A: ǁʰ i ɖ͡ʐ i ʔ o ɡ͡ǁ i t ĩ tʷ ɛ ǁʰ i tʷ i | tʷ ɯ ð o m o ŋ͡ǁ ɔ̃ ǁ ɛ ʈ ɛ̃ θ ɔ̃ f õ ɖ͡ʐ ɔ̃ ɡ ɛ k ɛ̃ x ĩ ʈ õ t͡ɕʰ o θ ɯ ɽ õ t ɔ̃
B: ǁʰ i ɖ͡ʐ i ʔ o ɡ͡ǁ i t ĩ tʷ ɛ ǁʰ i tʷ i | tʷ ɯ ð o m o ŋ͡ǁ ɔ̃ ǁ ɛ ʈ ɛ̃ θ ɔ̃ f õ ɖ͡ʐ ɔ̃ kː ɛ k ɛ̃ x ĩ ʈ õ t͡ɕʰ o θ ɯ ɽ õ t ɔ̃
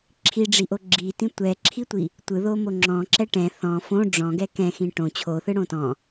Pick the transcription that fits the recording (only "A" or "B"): A